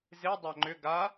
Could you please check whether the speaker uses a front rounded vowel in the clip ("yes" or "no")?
yes